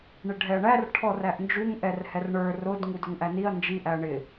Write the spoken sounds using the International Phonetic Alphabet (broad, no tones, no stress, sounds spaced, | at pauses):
ɳ ɪ ɖʱ ɛ ɐ̯ ɳ æ r ʈʰ ɔ r æ ʔ n d͡ʒ u ŋ ʔ ɛ r h ɛ r ɳ ə˞ r ʊ d ŋ u d ʊ ŋ ʔ æ n i ɐ̯ n d͡ʒ i ʔ æ ɐ̯ ɳ ɪ